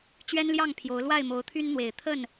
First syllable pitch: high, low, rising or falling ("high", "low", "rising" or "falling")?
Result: high